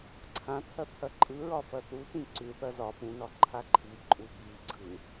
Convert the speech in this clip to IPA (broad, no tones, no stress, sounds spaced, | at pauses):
ǀʰ ã t̪ʰ ɐ t̪ʰ ɐ ǃʼ ɯ ɹ ɒ f ɐ θ u t ĩ ǀ ʉ θ ɐ z ɒ p ũ n ɒ ǃʰ a ǃʰ i ǃʼ u b i ɡ͡ǀ ɯ